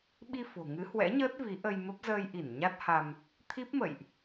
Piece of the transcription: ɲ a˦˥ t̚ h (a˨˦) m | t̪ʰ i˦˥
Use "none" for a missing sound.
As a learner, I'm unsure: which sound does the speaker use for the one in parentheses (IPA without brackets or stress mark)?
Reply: a˧